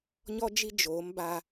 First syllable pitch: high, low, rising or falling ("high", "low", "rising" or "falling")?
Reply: high